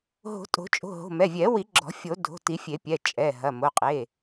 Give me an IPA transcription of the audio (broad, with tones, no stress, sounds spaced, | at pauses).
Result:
ɦ o̤˨˩˦ tʼ o̤˨˩˦ t͡ʃʼ o̤˩˧˩ ɦ o̤˩˧˩ m ɛ˩˧˩ vʲ ɛ˨˩˦ w i˨˩˦ ɡ͡ǁ ɔ̤˨˩˦ fʲ o˨˩˦ dʱ o̤˩˧˩ t i˨˩˦ fʲ e˨˩˦ pʲ ɛ˩˧˩ t͡ʃʼ ɛ˩˧˩ ɦ ɐ˩˧˩ m o˩˧˩ qʼ e˩˧˩